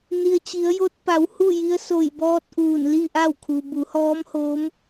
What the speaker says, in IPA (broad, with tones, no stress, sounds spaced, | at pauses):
n i˩ ə̯ t͡ɕ i˩˧ ə̯ j o˧ t̚ p a˩˧ w h u˥˨ j i˧˥ ə̯ s o˧˩ j b ɔː˧ t̚ ʔ uː˧˩ n l i˥˨ ʔ a˥˨ w kʰ u˩ b u˩˧ h ɔː˧˥ m h oː˧˥ m